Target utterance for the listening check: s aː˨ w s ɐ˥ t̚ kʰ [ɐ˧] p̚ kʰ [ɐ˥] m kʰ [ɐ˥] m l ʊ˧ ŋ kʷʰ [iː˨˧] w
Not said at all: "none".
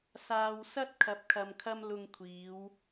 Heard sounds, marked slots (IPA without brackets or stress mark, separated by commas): ɐ˧, ɐ˧, ɐ˥, iː˨˧